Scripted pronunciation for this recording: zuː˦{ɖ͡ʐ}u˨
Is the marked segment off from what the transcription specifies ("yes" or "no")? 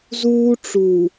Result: yes